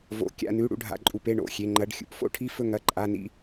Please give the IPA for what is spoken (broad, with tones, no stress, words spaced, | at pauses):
vo̰˩˧˩ kʲa̰˩˧˩nʉ˩˧˩ ɽṵ˥˨ɖʱa̰˩˧˩ǃʼu˩˧˩p e˩˧˩ɳo̰˩˧˩xʲe˩˧˩ ŋ͡ǃɐ˩˧˩ɖ xʲṵ˩˧˩p fo̰˥˨ʈʰi˥˨fɵ˥˨ ŋɐ˩˧˩ǃʼa˩˧˩nḭ˥˨